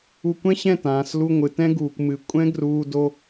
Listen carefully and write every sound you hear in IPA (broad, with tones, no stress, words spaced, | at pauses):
u˧kʷɛ̃˦ɕɛ̃˦˨ tãː˨slu˧ ŋʷɨ˨tɛ̃˦ɡuː˨kʷmɨ˨˦ kʷʼɛ̃˦ɡruː˧ do˧